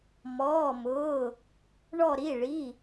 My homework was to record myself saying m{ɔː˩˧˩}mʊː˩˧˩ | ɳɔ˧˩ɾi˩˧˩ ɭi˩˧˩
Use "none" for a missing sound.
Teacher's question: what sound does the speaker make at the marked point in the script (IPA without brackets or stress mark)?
ɔː˩˧˩